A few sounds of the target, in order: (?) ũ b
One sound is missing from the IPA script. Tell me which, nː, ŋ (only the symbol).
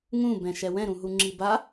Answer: ŋ